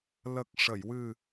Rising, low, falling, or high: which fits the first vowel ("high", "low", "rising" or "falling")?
low